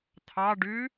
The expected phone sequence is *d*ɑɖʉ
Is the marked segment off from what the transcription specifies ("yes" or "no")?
yes